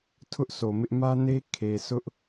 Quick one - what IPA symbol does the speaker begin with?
tʰ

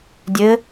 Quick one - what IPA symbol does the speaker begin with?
dʲ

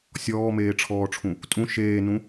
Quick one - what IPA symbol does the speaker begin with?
sʲ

